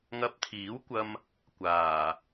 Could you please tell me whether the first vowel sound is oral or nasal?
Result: oral